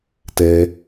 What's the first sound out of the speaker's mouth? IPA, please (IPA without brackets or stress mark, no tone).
t